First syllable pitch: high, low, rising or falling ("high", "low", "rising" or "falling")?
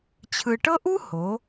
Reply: low